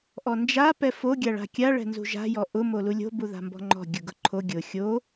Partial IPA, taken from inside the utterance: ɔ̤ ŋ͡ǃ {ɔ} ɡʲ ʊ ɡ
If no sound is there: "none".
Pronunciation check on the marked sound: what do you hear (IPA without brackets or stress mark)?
ɔ̤